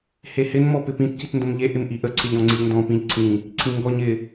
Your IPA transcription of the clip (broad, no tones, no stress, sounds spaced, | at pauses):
h e h ɪ n m ɔ p ɪ p ĩ t c i t n d ə̃ m ʎ e ʔ ɪ m ʔ i ʔ ə ǀʰ ɪ ʎ ɔ̃ ŋ͡ǀ i ʎ n d ɔ̃ p ĩ ʎ ǀʰ ĩ | ǀʰ ĩ ŋ ɡ ɔ ɲ ɪ